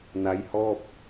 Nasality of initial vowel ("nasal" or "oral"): oral